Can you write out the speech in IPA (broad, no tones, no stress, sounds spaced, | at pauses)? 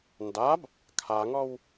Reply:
n d a b | kʰ a ŋ ɔ w